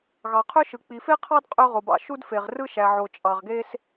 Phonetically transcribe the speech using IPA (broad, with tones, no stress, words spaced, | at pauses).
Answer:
ɣɑ˩qʰø˥ʃɯ˩ k͡pi˩fe˥qʰɑ˥d qʼø˥ ʁo˩bɑ̰˩ ʃu˥dfe˩ʁ rɯ˥ʃæ˩ʕo˩ t͡ʃʼɑ˩ʁɡe˥s